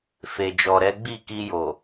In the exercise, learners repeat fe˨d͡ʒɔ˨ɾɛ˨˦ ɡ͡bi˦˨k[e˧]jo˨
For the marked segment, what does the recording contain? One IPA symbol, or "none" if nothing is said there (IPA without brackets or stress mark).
i˧